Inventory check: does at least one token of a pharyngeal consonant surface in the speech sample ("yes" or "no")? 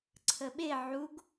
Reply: yes